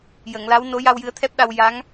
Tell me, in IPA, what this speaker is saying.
j ə˨˩˨ ŋ l a˧˥ w n o˧˥ j a˧ w j ɨ˧˥ ə̯ t̪ʰ ɛ˦˥ p̚ ɗ a˧ w j a˧˥ ŋ

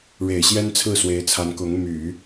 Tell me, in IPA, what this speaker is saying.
ɻ e˨˩ ɪ̯ ɕ j ɛ˥ n t͡sʰ ɹ̩˥˩ s w e˧˥ ɪ̯ t͡sʰ a˧˥ n k ʊ˧˥ ŋ m y˨˩˦

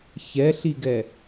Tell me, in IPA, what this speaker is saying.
ç ɛ ɬ i ɡ ɛ

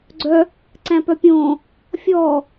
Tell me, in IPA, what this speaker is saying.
ɡ͡ǀ œ | ǀ æ̃ p œ pʲ õː | fʲ ɔː

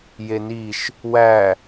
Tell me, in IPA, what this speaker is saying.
j e n i ʃ | w æ

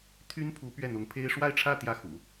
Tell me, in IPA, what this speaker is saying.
t̪ʰ y˥ n pʰ u˧˥ p ɥ ɛ˥˩ n̪ ʊ˧˥ ŋ pʰ e˥ ɪ̯ ʂ w a˥˧ ɪ̯ ʈ͡ʂʰ ä˥˧ t̪ j ä˥˩ x ṵ˨˩˦

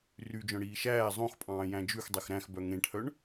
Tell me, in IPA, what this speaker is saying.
r y d͡ʒ œ̃ ɽ iː ʃ æː zˤ õ x pʼ ɑ̃ː j æ̃ d͡ʒ ʉ x dˤ ɛ x ɾ æ̃ x b œ ŋ ẽ ʈʰ œ ɳ

